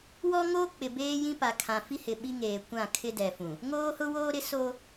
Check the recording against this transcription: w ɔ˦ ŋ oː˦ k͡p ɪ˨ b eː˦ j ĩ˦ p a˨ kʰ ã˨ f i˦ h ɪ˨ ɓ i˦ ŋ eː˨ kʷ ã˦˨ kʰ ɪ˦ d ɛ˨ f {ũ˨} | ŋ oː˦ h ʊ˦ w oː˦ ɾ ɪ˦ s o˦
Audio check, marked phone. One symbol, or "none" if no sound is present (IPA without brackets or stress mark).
ũ˨